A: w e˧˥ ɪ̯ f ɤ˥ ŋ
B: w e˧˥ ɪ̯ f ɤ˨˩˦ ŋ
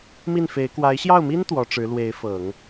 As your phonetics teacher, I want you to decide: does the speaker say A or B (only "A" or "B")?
B